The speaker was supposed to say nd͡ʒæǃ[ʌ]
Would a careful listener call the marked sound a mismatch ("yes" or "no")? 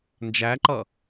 no